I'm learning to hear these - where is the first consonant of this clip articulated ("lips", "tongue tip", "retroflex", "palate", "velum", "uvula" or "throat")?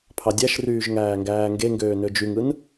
lips